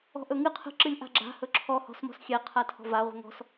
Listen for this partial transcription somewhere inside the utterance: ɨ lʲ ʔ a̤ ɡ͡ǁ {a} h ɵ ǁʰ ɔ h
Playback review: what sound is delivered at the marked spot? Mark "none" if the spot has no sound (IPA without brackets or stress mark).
a̤